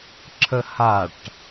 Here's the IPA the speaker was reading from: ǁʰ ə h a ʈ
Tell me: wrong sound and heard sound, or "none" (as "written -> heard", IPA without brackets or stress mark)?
none